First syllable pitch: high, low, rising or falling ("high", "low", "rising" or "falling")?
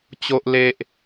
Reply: low